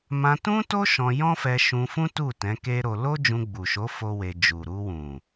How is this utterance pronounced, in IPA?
m ã˧ t ũ˦ t o˦ ʃ ɔ̃˧ j ɔ̃˦ f ɛ˧ ʃ ũ˧ f ũ˦ t u˦˨ t ɛ̃˨˦ k e˦ ɾ o˧ l o˦ d͡ʒ ũ˧ ɡ͡b u˨ ʃ o˨˦ f o˦ w e˧ d͡ʒ u˨ ɾ u˧ w ũ˨

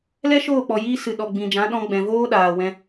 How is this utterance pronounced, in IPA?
l ɛ˦ ʃ oː˦˨ k͡p ɔ˨ j iː˧ s ɨ˨ ɗ ɔ˨ ɡ͡b ĩ˨ d͡ʒ ã˨˦ ɗ ɔ̃˧ ɡ͡b ɛ̃˨ v oː˦ ɗ aː˨ w ɛ̃˧

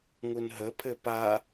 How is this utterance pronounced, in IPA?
ŋ u n ɦ ə pʰ ɘ p a

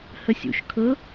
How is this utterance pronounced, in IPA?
h ə sʲ ṵ ʃ kʰ ɤ

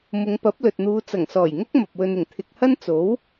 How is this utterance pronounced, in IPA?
m ʊ˨˧ ŋ p ɐ˨˥ p̚ l ɵ˨ t̚ n̪ uː˨˧ t͡s ɐ˨˩ ŋ s ɔː˨˩ j ŋ ʊ˥ k̚ m ɐ˨ p̚ w ɵ˧ n ɪ˨˩ ŋ t̪ʰ ɪ˨ k̚ h ɐ˥ n t͡s o˨˥ w

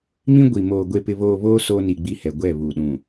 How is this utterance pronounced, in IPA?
m ĩ˦ ɡʷ i˨ m oː˨ ɡʷ e˨ p ɪ˨ β oː˨ β oː˦ s oː˦ n i˨ ɡ͡b i˦ h ɛ˨ ɡʷ ɛ˦˨ β u˨ ɗ ũ˨

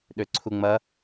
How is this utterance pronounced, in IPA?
ɗ ø ǀʰ u ŋ͡m ɐ

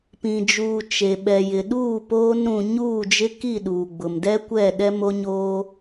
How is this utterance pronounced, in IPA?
p ĩ˨ d͡ʒ uː˨ t͡ʃ e˨ ɓ ɛ˨ j ɪ˨ ɗ uː˦˨ p oː˦ n ɾ ũ˨ ɲ uː˦˨ d͡ʒ ɪ˦ k i˦˨ ɗ uː˨ ɡ͡b ʊ˨ m d ɛ˦ kʷ ɛ˦˨ ɗ ɛ˦ m o˦ ɲ oː˦

